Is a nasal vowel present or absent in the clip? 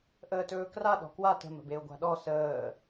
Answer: absent